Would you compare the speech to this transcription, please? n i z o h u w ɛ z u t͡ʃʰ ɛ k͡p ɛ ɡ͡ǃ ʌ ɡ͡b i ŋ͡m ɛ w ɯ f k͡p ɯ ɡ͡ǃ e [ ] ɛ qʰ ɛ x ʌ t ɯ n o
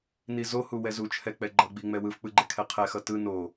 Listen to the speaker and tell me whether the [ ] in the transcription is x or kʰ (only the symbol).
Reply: kʰ